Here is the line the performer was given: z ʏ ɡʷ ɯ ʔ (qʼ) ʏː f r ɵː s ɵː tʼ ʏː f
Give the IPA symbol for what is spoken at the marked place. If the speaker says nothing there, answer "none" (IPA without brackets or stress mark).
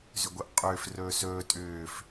qʼ